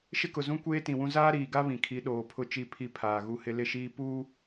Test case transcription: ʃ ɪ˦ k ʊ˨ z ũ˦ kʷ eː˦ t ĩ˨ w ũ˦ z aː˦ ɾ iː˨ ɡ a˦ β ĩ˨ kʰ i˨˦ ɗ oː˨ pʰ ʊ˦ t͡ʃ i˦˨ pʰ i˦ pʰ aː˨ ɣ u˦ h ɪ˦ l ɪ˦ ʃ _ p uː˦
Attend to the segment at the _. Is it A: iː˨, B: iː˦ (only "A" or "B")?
B